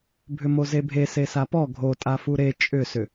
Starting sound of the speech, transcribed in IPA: bʱ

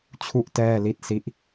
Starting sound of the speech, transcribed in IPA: t͡ɕʰ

